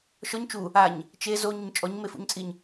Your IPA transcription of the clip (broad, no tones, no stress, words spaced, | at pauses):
ʃɔɲ t͡ʃu | aɲ | t͡ʃe zoɲʊɲ t͡ʃʼɔɲmefṵɲt͡sʼiɲ